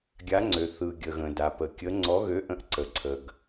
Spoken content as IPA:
ɡʲ a˨˥ ŋ͡ǀ ø˩ θ ɯ˩ ɡʲ ə˩ ɣ ə̃˩ d a˩ p ə˩ kʲ ə˨˥ ŋ͡ǀ ɔ˨˥ ɣ ø˨˥ ʔ ə̃˨˥ ʔ ǀ ə˩ ǀʰ ə˩ ɡ

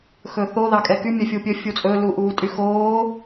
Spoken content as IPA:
x ɵː θ o ð ɑ kʼ ɛ k y mʲ œ fʲ u pʲ ɵ fʲ u t͡sʼ ɵ l u ʔ uː tʼ y x oː

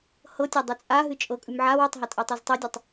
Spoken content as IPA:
h ɤ tʲ a dˤ ʉ t͡sʼ a ɦ ɨ t͡ʃʼ ɤ kʼ ʉ m ʕ a w o tˤ ɦ a tʼ ɤ tˤ e z tˤ o dʲ ɜ tˤ

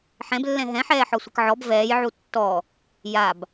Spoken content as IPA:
ħ ɛ̃ b lː ɛ̃ ɦ ɛ̃ ħ ɛː ħ ɔ sʷ ɪ k ʕ ɔ b v ɛː j ʕ u tː ɔ | j a b

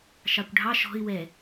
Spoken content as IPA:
ʃ ɑ kʷ ɖʱ ɑ ʃ ɔ̤ ɪ̯ w ɛ

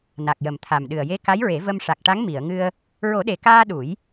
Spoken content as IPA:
n a˨˩ k̚ j ə˨˩ m t̪ʰ a˨˩ m ɗ ɨ˨˩ ə̯ j e˧˥ k a˧˥ j ɹ e˨˩˦ v ə˧ m ʂ a˨˩ k̚ ʈ a˧˥ ŋ m i˨˩˨ ə̯ ŋ ɨ˧ ə̯ | ɹ o˨˩˦ ɗ e˨˩ k aː˧ ɗ u˨˩˦ j

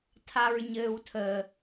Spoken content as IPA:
tʰ a ɹ ɲ ɘː w tʰ ə

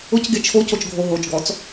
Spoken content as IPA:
ʊ c ɡ e t͡ʃʰ o c o t͡ʃ ɡʱ o ɦ o t͡ʃ ɡ ɔ t͡s

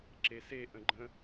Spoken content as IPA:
ǁ e s e ʔ ə̃ ɡ͡ǃ ə̃

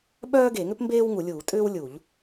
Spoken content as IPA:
ɓ œː˥ ɡ e˧˩˧ ŋ ʏ˥ p m b eː˥ w ŋ u˧˩˧ lʲ uː˧˩˧ tʼ ʏː˥ w lʲ u˧˩˧ ʎ

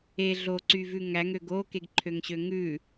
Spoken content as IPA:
e ɮ o ǀ y v ʉ ŋ æ ŋ ø ɡ o k e ɡ ǃʰ ø ŋ ɕ ø ŋ ʉ

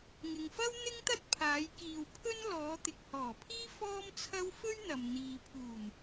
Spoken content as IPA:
ŋ ɪ˨ ŋ f ɐ˥ w n̪ ɪ˥ ŋ t̪ ɐ˥ t̚ pʰ aː˨˧ j k iː˨ w pʰ ɵ˥ n l ɔː˨˧ t̪ ɪ˨ k̚ h ɔː˨˩ pʰ iː˥ f ɔː˥ m t͡sʰ ɐ˥ w f ɵ˥ ɥ n̪ ɐ˨ m n̪ iː˨ pʰ uː˨˩ n

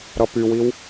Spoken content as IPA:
ɾ ʌ p y w i w

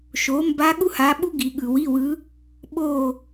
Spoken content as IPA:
ʃ o˩˥ m b a˧˥ ɠ u˥ h a˧˥ ɓ u˥ ɡ i˨ ɠ ɯ˨ w i˧˥˧ w ɯ˧˥ | ɓ o˥˧

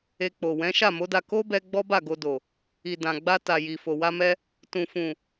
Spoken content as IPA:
e˧ k͡p o˨ w ɛ̃˨˦ ʃ a˦˨ m o˨˦ d a˧ k o˦ b ɛ˧ ɡ͡b ɔ˦ b a˦˨ ɡ o˧ d o˨ | i˨ d ã˨ ɡ͡b a˧ t a˨ j i˨ f o˨ w a˧ m ɛ˧ | t ũ˨ f ũ˨

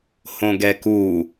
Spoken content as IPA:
h õ ɡ ɛ k u

